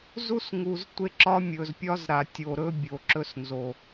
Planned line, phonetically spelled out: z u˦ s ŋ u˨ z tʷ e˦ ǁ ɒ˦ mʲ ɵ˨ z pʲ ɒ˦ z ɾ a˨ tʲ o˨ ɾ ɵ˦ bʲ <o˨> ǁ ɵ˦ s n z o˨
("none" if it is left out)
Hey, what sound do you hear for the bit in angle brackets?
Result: o˨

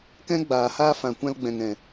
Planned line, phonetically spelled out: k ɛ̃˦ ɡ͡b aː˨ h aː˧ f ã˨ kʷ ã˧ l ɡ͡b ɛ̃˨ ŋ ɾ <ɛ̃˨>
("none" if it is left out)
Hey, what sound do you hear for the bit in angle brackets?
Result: ɛ̃˨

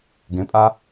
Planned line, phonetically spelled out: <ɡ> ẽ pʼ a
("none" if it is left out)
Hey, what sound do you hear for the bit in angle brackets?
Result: ɡ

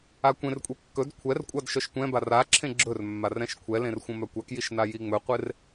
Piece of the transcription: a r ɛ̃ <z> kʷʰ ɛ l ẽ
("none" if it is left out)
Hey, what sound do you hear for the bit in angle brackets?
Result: ʃ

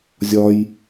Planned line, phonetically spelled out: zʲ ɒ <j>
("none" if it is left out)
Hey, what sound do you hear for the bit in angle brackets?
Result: j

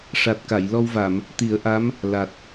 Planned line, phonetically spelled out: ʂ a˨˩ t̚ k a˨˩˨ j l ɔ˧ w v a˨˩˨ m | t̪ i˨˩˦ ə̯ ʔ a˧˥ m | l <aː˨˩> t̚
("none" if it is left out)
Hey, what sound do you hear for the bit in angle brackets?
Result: a˨˩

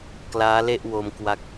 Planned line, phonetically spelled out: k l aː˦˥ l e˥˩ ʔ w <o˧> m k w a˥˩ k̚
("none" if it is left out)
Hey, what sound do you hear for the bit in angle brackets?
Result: o˧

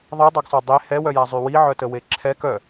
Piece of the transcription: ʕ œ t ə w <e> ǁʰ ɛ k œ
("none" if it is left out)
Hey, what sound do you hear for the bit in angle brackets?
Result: e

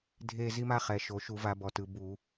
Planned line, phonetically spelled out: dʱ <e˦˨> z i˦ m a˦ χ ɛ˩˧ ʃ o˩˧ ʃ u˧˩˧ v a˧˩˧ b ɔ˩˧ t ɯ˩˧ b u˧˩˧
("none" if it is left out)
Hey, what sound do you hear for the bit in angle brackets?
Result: e˦˨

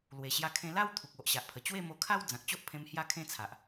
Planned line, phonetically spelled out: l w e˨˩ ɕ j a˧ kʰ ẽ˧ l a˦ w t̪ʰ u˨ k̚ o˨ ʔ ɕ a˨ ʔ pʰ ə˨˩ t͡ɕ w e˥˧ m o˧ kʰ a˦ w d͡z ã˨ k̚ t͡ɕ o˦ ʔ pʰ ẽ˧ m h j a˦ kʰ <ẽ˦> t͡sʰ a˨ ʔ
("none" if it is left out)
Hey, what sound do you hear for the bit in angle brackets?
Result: ẽ˦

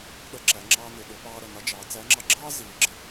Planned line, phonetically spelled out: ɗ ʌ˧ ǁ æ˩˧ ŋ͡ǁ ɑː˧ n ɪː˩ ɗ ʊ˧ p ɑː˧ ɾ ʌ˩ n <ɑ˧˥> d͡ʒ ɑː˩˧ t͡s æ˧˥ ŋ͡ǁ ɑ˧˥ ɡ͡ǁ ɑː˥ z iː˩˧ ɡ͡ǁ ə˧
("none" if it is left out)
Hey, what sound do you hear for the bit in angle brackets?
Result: ɑ˧˥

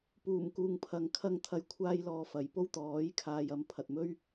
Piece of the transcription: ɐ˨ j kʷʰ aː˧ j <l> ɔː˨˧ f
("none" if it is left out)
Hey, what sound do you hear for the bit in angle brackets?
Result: l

